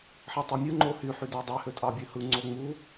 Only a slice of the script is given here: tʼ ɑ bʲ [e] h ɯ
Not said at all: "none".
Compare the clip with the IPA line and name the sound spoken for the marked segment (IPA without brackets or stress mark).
ø